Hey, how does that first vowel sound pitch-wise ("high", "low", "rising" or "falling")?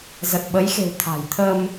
low